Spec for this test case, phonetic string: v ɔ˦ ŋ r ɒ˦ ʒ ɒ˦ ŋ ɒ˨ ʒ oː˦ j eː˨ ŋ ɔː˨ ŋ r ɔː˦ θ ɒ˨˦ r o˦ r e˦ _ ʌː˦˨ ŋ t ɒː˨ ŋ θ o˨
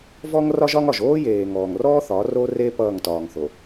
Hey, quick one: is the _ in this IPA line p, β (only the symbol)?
p